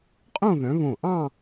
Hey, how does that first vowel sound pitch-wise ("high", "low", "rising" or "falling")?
falling